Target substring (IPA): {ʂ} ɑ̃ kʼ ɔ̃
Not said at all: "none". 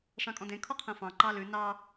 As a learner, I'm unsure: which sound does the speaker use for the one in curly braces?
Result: ʂ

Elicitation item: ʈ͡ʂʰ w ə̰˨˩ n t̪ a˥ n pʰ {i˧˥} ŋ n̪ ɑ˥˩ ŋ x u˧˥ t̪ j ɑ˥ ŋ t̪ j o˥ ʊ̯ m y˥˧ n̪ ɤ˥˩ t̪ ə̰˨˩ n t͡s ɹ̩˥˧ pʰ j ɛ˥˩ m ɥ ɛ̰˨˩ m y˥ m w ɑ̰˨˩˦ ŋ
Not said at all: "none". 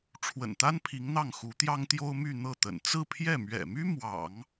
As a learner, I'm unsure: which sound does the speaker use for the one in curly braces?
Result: i˧˥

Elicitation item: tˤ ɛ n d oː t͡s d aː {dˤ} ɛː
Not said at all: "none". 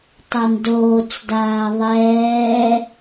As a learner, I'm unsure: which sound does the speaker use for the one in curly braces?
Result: ðˤ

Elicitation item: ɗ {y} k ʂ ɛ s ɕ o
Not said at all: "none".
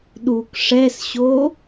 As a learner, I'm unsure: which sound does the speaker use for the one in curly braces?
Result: u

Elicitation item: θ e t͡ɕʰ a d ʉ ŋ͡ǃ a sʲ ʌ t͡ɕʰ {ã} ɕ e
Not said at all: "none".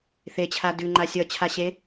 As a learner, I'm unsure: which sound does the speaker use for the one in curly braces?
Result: a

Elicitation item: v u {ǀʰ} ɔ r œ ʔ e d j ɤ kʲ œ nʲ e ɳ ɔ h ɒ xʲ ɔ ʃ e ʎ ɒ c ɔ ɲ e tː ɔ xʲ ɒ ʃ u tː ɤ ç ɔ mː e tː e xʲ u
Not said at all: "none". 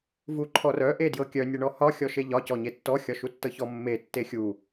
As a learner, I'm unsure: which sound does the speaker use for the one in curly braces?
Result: ǃʰ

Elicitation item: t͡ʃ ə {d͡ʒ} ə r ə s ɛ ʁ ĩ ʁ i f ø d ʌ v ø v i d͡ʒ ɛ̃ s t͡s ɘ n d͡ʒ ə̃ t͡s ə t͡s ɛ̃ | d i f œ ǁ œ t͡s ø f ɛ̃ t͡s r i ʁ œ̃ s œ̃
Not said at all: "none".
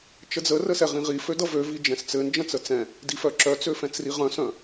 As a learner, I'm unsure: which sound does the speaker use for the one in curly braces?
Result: d͡z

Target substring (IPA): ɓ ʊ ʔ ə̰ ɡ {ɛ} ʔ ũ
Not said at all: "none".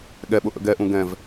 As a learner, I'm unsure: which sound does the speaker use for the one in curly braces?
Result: ɛ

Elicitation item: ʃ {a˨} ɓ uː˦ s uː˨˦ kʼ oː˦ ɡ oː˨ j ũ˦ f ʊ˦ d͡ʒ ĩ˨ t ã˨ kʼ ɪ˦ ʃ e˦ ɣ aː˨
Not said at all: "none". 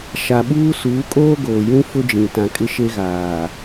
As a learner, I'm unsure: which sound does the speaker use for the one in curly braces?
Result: a˨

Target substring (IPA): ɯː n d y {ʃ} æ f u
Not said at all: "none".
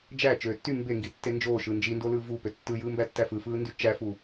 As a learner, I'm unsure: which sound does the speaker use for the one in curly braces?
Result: t͡ʃ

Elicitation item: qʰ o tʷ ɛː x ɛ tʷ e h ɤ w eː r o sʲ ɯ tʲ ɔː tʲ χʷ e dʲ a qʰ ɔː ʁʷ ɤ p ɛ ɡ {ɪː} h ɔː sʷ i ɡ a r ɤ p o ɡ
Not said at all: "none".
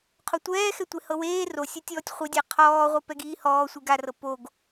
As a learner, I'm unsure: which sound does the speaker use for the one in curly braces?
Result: iː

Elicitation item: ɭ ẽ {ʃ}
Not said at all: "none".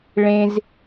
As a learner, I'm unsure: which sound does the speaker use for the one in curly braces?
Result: z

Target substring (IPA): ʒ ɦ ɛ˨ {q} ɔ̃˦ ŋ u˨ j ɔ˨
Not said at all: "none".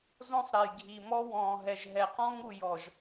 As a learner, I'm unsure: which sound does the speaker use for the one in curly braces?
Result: q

